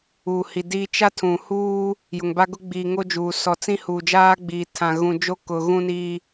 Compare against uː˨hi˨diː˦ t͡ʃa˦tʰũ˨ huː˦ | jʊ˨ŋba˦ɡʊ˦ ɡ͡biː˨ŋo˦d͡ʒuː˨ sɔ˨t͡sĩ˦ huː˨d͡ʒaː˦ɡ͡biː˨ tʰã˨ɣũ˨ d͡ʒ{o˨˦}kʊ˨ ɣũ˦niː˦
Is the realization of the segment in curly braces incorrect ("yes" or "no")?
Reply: yes